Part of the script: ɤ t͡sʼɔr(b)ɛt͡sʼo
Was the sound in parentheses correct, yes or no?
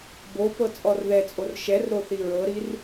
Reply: no